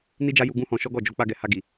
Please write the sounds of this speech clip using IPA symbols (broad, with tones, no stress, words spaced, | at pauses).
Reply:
ni˦d͡ʒa˦ju˧ ɡũ˦hɔ̃˧ʃɔ˦ɡɔ˦˨ d͡ʒo˧k͡pa˧ɡɛ˨ ha˧ɡi˨